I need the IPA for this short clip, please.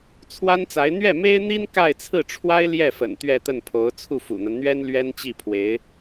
t͡sʰ w a˥ n t͡s a˧˥ ɪ̯ n̪ ɥ ɛ˥˩ m e˥ ɪ̯ n̪ i˥ n k a˥˧ ɪ̯ t͡sʰ ɹ̩˥˩ ʈ͡ʂʰ w a˥ ɪ̯ l j ɛ˥˩ f ə̰˨˩ n t̪ ɥ ɛ˥˧ t̪ ə˥˩ n pʰ o˧˥ ʊ̯ t͡sʰ u˥˩ f ṵ˨˩ n̪ a˦ n n̪ ɥ ɛ˥ n l ɥ ɛ˥ n t͡ɕ i˥˩ pʰ w e˧˥ ɪ̯

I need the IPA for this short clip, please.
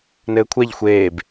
n ɘː kʷʰ ɛ ʎ xʷ eː b

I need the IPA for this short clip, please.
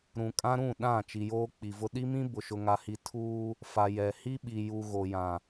ɾ ũ˨ kʼ ã˦ ɾ ũ˦˨ ɗ ã˦˨ t͡ʃ i˨ j oː˦ k͡p i˨ v ʊ˦ ɗ i˦ m ĩ˦ b ʊ˨ ʃ ʊ˨ ŋ a˨ h i˨ tʰ uː˦ | f a˨ j ɛ˨ h i˦ ɓ i˨ j u˨ ɣ o˨ j ã˨

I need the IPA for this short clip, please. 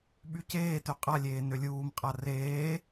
ɓ y c eː t ø qʼ a lʲ eː n ø lʲ uː m qʼ a r eː

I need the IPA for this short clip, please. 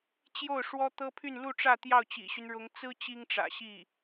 t͡ɕ j o˥˩ ʊ̯ ʂ w ɔ˥ t̪ ɤ˥ pʰ y˥˧ n l u˥˧ ʈ͡ʂ ä˥˧ t̪ j ɑ˥˩ ʊ̯ t͡ɕ ḭ˨˩ ɕ y˦ n ɻ ʊ˧˥ ŋ t͡s ɹ̩˥ t͡ɕ i˥ ŋ ʈ͡ʂ ä̰˨˩ ɕ i˥˩

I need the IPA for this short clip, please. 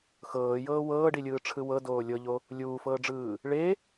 x ɤː j ɤː w ɤː ɖ i lʲ ɯː ʈ͡ʂʰ ɯ w ɤ d oː lʲ ɤ ʎ o | lʲ uː f ɤː ɖ͡ʐ ɯː | ɭ e

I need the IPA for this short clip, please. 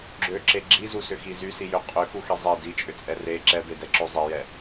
ɡ͡ǁ ø ǁ e ɡ͡ǁ i z u s ʏ x i z y s i j ø qʼ ø x u x i zˤ e d i t͡ʃʼ ʏ t͡sʼ ɛ r e ǁ ɛ b e d ɛ ǁ ø zˤ i j ɛ

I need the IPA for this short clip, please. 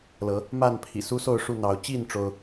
l ɤ˨˦ | m a˥˨ n pʰ ḭ˨˩ s u˦ s o˥˨ ʊ̯ ʂ u˥˨ n̪ ɑ˨˦ ʊ̯ t͡ɕ i˥˨ n ʈ͡ʂ o˦ ʊ̯

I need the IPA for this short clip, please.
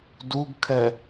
d u ɡ kʰ ɛ

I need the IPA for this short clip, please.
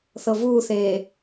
θ ɤ v uː θ eː

